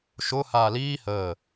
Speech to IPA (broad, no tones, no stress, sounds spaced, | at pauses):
ʃ ʊ h aː l iː h əː